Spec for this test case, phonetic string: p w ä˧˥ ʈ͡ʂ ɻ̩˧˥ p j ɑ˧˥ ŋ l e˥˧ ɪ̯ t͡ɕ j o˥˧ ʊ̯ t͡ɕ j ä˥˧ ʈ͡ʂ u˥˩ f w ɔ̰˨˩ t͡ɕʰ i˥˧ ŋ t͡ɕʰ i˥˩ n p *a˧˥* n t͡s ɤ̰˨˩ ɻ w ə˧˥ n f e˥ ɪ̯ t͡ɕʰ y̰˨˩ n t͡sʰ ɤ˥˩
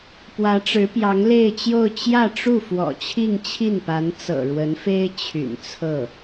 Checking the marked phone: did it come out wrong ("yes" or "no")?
no